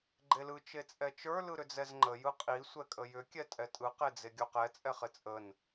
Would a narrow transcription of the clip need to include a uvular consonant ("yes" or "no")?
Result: yes